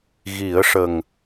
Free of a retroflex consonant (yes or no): no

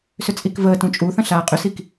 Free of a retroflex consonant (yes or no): yes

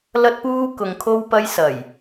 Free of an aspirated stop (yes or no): no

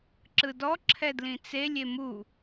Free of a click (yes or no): no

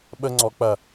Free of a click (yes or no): no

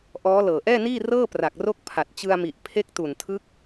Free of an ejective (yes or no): yes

